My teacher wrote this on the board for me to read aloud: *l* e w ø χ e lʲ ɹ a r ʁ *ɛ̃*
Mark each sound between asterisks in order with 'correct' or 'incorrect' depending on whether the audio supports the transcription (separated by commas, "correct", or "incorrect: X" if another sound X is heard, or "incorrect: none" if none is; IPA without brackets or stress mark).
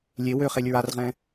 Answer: incorrect: lʲ, correct